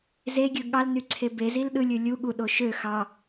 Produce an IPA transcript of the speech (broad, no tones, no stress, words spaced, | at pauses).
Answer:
zeɡʲɯ ɠɑlny ǀʰebezil ɗɯlʲɯ lʲu ɠuɗo ʃø xɑ